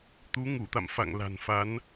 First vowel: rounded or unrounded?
rounded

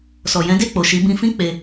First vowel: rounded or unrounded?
rounded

